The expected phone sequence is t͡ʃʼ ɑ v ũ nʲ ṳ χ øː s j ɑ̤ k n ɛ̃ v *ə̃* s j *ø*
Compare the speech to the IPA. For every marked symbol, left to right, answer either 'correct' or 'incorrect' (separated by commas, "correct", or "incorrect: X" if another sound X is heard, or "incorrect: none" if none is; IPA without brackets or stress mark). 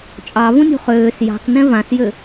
incorrect: ã, correct